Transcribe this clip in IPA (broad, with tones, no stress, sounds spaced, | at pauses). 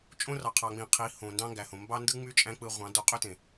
t͡ʃʼ õ˦ r ɑ˨ qʰ ɑ˨ ŋ͡m ĩ˨ qʰ i˨˦ h õ˨ n d ɑ̃˦ ŋ ɡ æ˨ h õ˨ m b ɑ˦ n d ɯ˦ ŋ͡m y˦ t͡ʃʼ æ̃˦ k͡p ɯ˧ ʁʷ ɑ̃˨˦ d o˧ qʼ ø˦ t ẽ˨